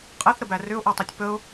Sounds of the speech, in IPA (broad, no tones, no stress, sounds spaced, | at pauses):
qʼ ɛ θ ɾ ə b æ r ʏ ʊ̯ ʔ ɛ tˤ i tʲ p ə ʊ̯